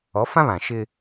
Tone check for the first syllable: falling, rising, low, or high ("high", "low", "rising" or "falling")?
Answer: rising